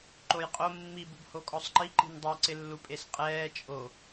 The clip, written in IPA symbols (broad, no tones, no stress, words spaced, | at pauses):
ǃojqʼo mːi bubhokʼɔsˤǃi ǃi̤ndˤɛ ǀɪlːupʼesqʼɛː t͡ʃʼo